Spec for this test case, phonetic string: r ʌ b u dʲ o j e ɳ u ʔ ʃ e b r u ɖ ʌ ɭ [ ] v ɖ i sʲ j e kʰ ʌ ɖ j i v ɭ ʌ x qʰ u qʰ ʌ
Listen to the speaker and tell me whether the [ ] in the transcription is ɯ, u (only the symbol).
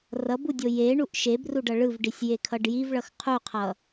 ɯ